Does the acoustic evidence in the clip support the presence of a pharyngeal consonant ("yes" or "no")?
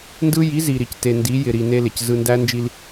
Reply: no